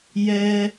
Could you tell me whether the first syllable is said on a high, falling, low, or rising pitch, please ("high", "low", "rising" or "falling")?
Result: high